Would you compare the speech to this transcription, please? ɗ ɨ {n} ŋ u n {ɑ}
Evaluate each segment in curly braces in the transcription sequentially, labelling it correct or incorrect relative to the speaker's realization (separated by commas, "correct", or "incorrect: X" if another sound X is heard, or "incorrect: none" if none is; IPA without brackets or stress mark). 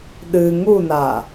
incorrect: none, incorrect: a